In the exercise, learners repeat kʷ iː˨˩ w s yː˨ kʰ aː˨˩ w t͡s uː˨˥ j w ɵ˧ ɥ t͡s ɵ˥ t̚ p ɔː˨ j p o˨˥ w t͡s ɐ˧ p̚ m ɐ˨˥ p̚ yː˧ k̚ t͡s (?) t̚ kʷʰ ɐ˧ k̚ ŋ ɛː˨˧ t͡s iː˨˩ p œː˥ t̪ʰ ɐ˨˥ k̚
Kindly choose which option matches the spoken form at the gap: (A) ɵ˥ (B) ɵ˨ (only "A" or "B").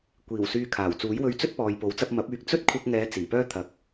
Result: A